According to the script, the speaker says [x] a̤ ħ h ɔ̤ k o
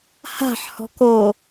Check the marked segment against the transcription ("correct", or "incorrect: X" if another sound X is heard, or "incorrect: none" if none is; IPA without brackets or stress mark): incorrect: h